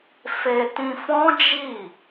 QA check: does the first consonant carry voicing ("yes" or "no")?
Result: no